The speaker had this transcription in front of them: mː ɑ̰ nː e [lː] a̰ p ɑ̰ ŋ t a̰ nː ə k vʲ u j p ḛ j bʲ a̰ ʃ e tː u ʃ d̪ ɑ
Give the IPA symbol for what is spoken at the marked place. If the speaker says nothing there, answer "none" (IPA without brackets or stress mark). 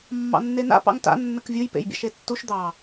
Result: n